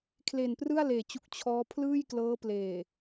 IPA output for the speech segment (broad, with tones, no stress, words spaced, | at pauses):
kʰle˨˩nprɯ˥˩a̯leː˩˦t͡ɕu˨˩k̚ t͡ɕʰɔː˦˥ pʰlɯː˥˩jklɤː˦˥pleː˨˩